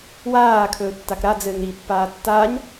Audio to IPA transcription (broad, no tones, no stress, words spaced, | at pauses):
waː kʰɵːtːakɾa d͡zɘːŋɾi pːaːtːaːɲ